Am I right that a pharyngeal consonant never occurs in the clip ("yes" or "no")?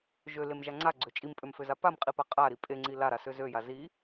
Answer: yes